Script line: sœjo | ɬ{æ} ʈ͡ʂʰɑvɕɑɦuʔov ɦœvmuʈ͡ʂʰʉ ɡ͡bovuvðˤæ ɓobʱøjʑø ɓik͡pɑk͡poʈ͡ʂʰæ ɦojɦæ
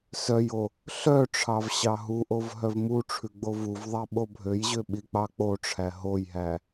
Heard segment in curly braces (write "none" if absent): œ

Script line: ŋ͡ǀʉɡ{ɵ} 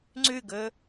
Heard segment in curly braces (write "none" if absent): ɵ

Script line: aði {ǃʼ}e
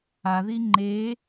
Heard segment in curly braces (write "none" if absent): ŋ͡ǃ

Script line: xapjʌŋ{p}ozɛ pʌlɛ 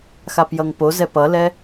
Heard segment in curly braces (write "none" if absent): p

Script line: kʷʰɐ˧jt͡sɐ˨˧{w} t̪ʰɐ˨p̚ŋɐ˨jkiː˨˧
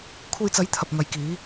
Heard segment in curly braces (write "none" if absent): j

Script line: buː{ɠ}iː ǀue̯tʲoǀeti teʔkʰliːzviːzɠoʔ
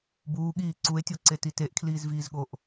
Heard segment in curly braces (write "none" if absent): ɠ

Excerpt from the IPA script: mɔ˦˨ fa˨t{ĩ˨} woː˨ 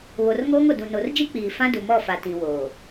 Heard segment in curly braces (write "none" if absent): ĩ˨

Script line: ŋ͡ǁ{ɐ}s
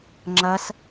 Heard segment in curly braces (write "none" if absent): ɐ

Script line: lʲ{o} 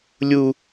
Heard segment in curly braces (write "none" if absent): u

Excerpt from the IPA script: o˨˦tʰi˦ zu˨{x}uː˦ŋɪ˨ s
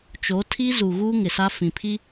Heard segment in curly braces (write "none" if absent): ɣ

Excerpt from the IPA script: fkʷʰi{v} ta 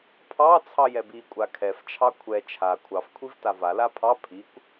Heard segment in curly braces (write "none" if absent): v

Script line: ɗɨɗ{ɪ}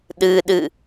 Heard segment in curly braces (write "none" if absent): ɨ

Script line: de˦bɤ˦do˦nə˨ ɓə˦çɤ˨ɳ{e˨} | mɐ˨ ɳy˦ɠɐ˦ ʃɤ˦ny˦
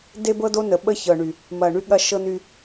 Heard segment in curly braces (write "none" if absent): y˨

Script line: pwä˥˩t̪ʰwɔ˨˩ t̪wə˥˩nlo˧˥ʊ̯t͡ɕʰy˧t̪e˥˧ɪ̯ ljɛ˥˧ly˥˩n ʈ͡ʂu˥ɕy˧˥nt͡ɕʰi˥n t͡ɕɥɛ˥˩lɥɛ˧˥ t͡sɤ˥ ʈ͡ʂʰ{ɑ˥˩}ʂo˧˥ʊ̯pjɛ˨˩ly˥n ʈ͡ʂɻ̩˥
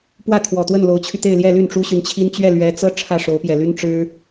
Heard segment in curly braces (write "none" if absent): ä˥˩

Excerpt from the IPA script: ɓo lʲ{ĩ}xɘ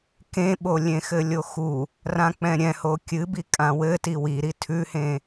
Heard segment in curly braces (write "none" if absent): ẽ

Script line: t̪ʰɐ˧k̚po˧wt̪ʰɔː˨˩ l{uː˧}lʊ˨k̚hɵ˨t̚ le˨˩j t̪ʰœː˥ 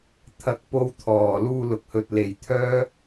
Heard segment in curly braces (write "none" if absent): uː˧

